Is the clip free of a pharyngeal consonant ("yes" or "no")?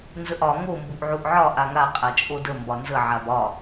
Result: no